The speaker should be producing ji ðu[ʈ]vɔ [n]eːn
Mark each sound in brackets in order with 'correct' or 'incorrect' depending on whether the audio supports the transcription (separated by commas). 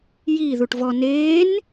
correct, correct